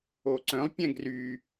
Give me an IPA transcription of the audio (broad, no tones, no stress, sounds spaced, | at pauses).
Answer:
o ǀ œ̃ lˠ pʲ ɛ̃ ɡ r y